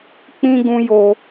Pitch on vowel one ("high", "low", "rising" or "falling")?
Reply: high